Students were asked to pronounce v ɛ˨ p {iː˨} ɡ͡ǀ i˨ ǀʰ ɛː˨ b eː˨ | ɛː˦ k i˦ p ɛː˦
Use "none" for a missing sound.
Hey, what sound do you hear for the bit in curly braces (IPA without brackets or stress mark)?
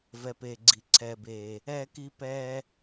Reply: eː˨